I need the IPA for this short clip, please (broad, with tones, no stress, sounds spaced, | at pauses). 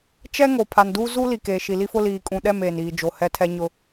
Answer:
t͡ʃ ɛ˦ ŋ o˨ pʰ a˨ n d uː˦ z u˦ l i˨ k eː˨ ʃ i˨ l i˦ f ʊ˦ l iː˨ kʼ ũ˨ ɗ ɛ˦˨ m eː˨ n iː˨ d͡ʒ o˨ h ɛ˦ tʰ ɛ˦ ɲ ʊ˦